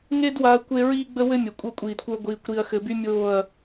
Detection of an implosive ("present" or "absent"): absent